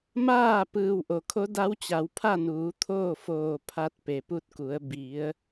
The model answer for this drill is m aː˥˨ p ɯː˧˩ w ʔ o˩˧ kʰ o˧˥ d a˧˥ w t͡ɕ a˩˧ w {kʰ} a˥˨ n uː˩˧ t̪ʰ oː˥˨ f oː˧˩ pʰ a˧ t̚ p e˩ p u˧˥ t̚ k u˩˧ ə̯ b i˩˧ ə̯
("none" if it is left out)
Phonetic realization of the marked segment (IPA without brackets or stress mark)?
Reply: pʰ